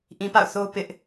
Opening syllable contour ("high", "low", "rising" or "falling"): low